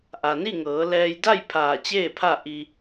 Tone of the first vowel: low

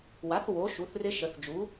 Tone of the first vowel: rising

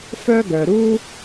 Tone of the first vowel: high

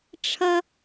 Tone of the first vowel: high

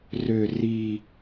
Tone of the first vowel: low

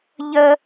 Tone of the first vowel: high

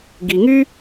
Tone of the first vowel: low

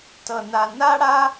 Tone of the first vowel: high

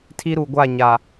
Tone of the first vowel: high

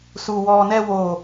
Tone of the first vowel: low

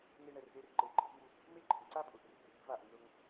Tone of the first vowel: high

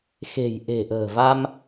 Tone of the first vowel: low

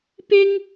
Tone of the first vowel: high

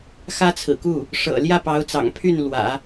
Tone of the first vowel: high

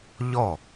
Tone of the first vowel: falling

